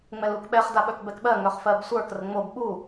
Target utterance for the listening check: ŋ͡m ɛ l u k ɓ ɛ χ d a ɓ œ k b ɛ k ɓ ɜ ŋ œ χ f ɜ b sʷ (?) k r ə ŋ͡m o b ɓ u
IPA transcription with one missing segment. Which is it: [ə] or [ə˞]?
ə˞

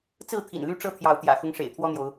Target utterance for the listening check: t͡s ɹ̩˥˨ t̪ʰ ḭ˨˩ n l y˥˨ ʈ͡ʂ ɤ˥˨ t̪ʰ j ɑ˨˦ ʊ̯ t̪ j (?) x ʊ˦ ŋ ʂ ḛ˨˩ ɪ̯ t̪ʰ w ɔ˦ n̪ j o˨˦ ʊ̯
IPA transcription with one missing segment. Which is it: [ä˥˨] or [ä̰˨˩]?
ä̰˨˩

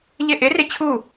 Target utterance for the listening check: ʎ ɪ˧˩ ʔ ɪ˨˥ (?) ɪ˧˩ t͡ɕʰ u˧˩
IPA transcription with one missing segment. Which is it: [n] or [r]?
r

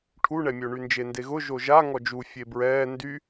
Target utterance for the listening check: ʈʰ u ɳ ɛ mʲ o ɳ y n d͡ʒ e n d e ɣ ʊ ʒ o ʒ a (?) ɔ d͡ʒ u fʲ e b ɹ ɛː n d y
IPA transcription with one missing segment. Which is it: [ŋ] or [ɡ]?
ŋ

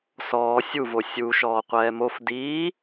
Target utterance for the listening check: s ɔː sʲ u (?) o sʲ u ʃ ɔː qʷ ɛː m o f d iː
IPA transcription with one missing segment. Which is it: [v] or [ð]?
v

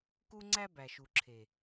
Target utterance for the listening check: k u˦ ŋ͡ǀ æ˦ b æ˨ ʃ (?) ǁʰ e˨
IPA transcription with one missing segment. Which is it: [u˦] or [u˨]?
u˨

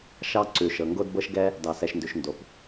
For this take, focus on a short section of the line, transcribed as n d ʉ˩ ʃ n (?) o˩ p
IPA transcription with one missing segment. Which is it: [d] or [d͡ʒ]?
d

